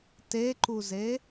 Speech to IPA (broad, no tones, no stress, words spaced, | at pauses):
teǃuze